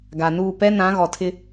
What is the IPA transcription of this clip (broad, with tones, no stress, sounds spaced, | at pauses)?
ɡ a˨ n uː˦˨ p ɛ˦ n ã˨˦ ɣ ɔ˨ tʰ ɪ˦